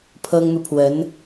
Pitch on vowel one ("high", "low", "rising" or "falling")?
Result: high